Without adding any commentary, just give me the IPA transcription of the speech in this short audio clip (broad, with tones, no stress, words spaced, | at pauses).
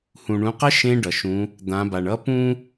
hũ˩ɳũ˩˧qə˧˥ ʃẽ˧ ɖʌ˩ ʃũ˩˧ | d̪ã˩˧ba˩ɳʌ˧˥ pũ˥